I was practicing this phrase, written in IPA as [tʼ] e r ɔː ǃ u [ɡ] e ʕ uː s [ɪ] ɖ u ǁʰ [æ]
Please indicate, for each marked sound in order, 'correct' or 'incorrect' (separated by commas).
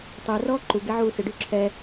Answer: incorrect, correct, correct, incorrect